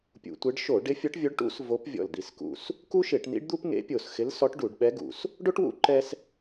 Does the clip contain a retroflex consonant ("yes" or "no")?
yes